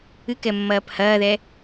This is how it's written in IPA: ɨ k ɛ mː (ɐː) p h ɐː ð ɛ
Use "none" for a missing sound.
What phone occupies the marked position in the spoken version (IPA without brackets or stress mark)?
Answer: ɐː